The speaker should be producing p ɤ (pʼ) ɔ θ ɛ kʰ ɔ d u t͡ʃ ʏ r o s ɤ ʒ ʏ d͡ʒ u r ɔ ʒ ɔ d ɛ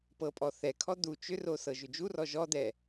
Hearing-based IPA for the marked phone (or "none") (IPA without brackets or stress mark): pʼ